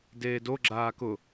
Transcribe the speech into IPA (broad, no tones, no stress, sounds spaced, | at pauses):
d eː d o ɡ͡ǁ aː k ʊ